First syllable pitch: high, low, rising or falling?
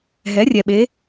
rising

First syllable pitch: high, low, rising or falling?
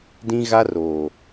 high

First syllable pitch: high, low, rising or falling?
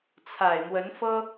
low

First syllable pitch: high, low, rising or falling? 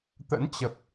rising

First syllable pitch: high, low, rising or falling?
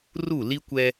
falling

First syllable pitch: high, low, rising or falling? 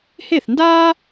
falling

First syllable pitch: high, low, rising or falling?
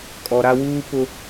low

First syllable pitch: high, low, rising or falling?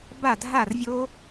falling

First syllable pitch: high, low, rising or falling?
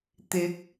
rising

